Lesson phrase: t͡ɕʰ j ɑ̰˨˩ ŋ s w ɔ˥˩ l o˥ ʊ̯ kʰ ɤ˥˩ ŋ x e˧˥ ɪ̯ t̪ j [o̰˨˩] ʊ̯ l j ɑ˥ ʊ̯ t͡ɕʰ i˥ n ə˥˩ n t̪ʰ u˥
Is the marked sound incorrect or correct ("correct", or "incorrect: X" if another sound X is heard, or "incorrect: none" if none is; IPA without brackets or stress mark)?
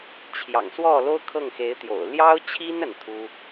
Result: correct